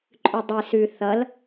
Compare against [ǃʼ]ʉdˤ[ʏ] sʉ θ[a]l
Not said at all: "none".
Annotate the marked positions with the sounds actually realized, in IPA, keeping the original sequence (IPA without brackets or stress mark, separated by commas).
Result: ǃʼ, ɨ, ʌ